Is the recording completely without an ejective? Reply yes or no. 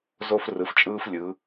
no